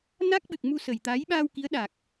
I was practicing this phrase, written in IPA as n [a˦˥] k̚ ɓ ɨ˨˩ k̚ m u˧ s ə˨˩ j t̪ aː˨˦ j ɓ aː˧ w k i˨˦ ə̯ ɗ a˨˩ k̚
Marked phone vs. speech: correct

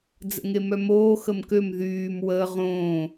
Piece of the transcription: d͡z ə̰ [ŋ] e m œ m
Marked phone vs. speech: correct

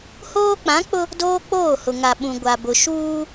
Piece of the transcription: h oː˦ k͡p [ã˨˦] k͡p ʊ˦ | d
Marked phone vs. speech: correct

